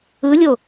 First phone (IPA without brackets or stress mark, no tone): ɯ